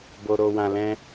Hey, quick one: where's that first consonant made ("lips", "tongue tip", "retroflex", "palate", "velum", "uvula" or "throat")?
lips